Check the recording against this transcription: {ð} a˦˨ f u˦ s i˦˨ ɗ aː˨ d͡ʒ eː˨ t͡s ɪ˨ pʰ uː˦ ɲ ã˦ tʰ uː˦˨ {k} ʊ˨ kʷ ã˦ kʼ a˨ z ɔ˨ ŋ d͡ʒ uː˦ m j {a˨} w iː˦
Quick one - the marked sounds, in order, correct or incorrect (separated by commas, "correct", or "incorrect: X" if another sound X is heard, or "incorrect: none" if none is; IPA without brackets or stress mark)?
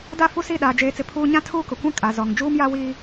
incorrect: d, correct, incorrect: a˦